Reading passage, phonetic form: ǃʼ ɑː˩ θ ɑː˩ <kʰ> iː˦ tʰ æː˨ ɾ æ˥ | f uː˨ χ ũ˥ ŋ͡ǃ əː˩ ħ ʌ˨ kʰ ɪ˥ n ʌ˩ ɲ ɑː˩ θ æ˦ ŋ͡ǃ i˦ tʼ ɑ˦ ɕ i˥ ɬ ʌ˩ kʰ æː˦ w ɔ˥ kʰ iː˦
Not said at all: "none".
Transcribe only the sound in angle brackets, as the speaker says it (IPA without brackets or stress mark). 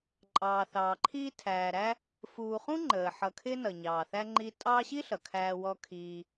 ǃʰ